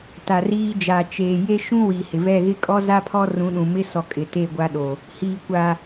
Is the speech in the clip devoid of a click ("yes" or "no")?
yes